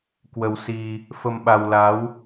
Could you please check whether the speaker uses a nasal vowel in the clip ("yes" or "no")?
no